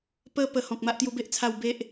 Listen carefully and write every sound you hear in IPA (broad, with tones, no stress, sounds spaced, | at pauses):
p ə˦ p ə˧ h ɔ̃˨ k̚ m a˦ ʔ t̪ j u˦ b e˦ ʔ t͡sʰ a˥˧ w b e˦ ʔ